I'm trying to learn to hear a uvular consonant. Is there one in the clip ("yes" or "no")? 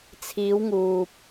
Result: no